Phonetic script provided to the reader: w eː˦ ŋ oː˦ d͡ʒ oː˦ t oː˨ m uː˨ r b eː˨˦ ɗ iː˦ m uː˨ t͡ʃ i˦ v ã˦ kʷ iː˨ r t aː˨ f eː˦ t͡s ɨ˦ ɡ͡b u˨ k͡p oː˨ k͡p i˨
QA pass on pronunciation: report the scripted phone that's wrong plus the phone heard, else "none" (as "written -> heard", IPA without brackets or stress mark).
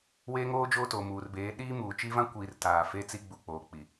ɨ˦ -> i˦